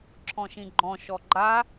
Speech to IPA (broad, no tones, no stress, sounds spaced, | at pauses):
ǁʰ ɔ̃ ʃ ĩ ɡ͡ǃ ɔ̃ ʃ ɔ ɡ͡ǃ a